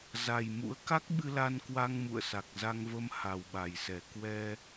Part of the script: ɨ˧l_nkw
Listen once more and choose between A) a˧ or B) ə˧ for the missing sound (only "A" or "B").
A